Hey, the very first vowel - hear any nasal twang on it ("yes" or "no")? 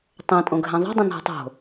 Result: yes